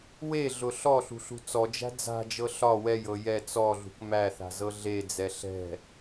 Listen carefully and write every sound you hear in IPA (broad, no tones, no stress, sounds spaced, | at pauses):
w e ɮ ʊ ɬ ɔ ɬ ṳ ɬ ṳ t͡s ɔ d͡ʒ æ̤ d͡z a̤ d͡ʒ ɤ ɬ ɒ w ɛ j ɤ j ɛ t͡s ɔ ɮ ṳ k m æ θ a̤ z ɤ ɮ e d͡z ɛ ɬ ɛ̤